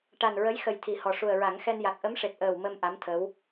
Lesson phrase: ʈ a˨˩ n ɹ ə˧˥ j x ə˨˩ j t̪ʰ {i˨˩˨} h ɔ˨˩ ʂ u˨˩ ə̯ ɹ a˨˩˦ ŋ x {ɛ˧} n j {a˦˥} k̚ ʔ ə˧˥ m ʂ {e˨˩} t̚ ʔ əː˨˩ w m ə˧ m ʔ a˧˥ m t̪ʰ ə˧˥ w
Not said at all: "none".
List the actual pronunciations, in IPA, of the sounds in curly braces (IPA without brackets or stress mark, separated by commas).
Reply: i˨˩˨, ɛ˧, a˨˩, e˨˩